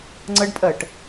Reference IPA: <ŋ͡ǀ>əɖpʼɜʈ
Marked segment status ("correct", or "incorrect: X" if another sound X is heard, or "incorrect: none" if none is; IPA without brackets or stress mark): correct